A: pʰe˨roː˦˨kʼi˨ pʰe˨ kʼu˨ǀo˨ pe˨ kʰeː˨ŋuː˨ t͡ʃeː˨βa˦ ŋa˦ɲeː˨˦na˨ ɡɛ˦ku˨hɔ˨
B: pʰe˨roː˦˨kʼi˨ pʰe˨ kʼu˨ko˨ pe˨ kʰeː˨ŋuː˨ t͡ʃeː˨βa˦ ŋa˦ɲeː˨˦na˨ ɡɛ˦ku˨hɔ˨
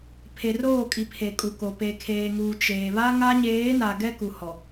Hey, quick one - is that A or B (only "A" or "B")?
B